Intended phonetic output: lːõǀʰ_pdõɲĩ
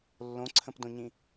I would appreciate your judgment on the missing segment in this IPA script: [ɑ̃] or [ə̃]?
ə̃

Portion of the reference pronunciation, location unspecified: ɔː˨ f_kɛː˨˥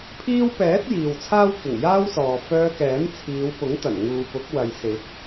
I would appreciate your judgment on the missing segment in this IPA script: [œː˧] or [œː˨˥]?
œː˧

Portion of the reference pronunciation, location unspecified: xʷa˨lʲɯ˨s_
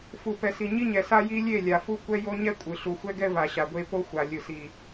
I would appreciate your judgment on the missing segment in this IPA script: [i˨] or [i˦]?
i˨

